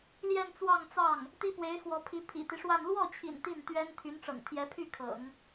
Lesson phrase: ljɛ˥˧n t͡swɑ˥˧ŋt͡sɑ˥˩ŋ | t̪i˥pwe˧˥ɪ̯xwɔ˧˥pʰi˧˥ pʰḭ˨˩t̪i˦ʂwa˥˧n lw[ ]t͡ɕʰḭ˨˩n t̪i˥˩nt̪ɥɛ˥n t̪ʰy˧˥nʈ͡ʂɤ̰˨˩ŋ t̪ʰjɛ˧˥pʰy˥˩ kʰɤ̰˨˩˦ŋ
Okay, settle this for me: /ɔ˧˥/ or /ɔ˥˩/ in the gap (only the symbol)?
ɔ˥˩